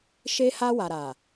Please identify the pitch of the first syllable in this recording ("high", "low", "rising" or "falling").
high